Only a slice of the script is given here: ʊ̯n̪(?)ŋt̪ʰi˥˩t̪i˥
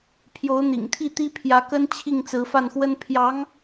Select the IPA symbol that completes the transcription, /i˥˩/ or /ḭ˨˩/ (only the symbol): ḭ˨˩